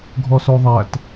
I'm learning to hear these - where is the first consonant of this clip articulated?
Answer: velum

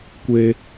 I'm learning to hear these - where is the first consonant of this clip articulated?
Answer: velum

